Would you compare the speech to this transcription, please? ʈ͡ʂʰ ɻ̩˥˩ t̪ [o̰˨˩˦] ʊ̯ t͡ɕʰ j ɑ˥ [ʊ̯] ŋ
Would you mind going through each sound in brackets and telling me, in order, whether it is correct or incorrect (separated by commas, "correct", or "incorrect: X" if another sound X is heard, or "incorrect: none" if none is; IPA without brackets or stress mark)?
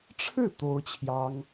incorrect: o˥, incorrect: none